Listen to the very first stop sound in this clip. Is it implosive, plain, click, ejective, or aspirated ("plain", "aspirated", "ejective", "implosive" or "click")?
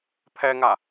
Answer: aspirated